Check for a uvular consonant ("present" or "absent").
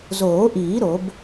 absent